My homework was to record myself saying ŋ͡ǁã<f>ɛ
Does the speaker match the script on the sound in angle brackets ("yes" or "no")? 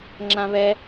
no